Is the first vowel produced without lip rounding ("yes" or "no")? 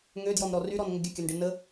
no